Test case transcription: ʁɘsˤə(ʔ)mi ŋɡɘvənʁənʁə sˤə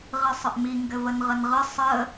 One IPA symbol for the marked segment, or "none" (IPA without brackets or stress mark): ʔ